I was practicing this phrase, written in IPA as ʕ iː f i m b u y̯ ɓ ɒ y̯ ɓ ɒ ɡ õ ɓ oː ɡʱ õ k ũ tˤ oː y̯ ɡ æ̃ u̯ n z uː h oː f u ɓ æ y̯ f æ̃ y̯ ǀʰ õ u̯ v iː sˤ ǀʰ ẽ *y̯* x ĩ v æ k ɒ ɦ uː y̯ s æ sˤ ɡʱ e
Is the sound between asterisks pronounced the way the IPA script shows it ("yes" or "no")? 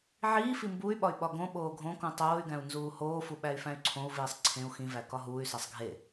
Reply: no